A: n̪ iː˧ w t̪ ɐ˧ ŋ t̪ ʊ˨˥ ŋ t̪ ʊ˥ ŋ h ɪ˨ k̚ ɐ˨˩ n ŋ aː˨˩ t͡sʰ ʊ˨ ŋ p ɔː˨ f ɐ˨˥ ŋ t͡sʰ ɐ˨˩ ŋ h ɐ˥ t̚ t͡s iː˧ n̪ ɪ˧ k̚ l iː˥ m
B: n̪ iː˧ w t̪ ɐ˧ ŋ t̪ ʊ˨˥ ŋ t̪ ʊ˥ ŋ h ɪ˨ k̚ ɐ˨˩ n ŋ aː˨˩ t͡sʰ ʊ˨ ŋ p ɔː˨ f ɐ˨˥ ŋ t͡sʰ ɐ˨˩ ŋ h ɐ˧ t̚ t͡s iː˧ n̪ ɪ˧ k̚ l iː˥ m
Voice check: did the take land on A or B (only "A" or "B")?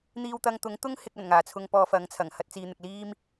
A